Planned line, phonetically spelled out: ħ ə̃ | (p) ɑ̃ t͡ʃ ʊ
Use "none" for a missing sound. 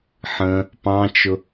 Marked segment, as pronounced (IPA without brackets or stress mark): p